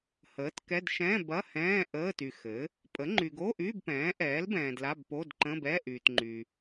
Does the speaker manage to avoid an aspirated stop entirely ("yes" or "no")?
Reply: yes